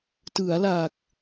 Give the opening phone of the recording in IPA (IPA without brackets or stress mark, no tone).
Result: t